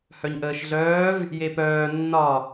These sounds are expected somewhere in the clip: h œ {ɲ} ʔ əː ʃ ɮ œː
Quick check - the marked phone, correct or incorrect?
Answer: correct